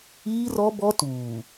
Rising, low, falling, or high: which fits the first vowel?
high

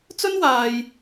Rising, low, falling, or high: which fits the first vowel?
high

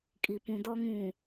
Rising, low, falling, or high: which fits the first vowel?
low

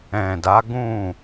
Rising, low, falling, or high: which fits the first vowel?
low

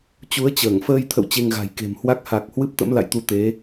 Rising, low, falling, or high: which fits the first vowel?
rising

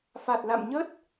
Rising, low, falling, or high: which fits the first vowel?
low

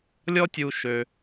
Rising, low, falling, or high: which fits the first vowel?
high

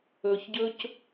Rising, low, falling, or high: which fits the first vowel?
low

